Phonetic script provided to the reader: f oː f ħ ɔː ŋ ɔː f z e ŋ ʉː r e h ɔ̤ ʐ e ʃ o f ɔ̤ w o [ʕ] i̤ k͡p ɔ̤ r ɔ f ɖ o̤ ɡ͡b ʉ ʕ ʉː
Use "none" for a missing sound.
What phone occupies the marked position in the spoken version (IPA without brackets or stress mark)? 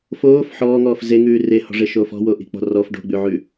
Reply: ʔ